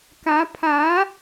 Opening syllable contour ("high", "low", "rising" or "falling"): rising